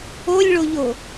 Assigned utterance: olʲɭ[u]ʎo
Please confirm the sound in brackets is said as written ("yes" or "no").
no